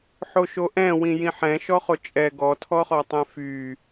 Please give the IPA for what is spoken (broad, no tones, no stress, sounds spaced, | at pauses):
ħ o ʃ o ʔ ɛ̃ w ĩ j ĩ ħ ɛ̃ ʃ ɔ χ o t͡ʃʼ ɛ ɡ ɔ tʰ ɔ χ ɔ tˤ ɛ̃ f y